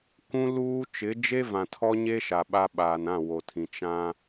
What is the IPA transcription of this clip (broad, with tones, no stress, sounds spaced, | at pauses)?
k ũ˦ l uː˦ t͡ʃ ɪ˨˦ d͡ʒ e˦ v ã˨ tʰ ɔ˦ ɲ e˦ ʃ a˨ ɓ a˦ ɓ aː˨ n ã˦˨ w o˨ tʰ ĩ˨ t͡ʃ ã˦